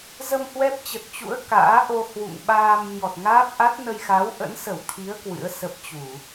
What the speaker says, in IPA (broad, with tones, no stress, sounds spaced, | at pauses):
z ə˧ m h w ɛ˦˥ p̚ t͡ɕ ə˨˩ t̚ t͡ɕ ṵ˧˥ ə̯ k a̰ː˧˥ ʔ o˧ h w ṵ˧˨ ŋ ɓ aː˧ m ɲ ɔ˨˩ t̚ ŋ aː˦˥ p̚ ʔ a˦˥ t̚ n ə˧ j x a˨˦ w ʔ ə̰˧˥ n s ə˧˩ w t̪ʰ i˨˦ ə̯ k w ɨ̰˧˥ ə̯ s ə˦˥ p̚ t͡ɕ u˧˩˨